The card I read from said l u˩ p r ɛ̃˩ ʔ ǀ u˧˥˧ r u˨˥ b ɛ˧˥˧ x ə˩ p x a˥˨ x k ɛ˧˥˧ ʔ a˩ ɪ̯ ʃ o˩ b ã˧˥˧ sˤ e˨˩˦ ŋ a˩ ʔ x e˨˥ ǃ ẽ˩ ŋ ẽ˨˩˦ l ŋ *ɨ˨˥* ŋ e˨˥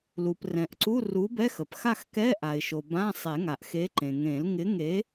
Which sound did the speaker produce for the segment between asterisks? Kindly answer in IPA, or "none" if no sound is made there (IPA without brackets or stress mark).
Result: ɪ˨˥